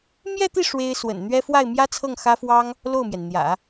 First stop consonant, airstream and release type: plain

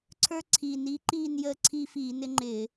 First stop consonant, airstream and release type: click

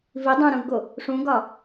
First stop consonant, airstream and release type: plain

